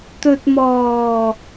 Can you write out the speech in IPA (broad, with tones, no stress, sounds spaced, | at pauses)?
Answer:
t̪ ɵ˨ t̚ m ɔː˨˩